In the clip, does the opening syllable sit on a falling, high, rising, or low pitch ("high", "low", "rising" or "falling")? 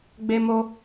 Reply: high